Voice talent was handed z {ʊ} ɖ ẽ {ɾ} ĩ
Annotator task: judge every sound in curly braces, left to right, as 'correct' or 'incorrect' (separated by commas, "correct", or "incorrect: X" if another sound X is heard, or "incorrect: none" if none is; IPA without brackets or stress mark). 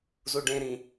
incorrect: u, correct